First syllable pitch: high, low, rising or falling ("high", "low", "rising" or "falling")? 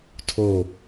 falling